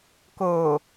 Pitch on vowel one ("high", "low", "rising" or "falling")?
low